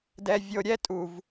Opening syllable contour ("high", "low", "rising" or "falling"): low